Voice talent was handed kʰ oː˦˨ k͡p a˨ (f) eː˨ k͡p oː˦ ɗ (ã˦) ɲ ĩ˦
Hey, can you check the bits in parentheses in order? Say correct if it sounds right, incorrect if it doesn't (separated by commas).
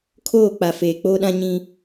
correct, correct